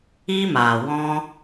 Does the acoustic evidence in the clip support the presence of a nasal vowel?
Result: yes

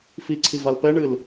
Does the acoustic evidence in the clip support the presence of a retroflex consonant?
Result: yes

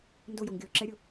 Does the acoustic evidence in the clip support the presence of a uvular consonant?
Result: no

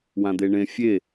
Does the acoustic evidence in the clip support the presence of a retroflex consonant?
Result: yes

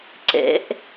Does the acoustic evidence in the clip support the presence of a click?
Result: yes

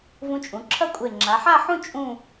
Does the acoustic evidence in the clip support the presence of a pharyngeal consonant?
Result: yes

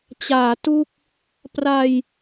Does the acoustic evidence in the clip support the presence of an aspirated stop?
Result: no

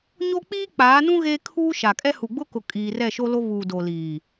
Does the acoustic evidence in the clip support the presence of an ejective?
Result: yes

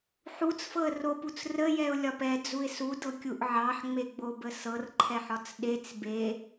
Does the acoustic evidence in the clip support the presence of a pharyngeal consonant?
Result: yes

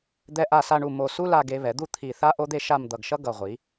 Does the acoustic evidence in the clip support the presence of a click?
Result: no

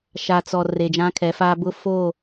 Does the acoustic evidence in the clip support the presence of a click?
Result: no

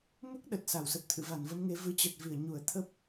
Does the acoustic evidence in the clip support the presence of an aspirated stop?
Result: yes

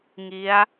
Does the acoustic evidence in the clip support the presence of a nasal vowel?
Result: no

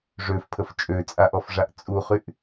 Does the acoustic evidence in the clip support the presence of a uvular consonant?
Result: yes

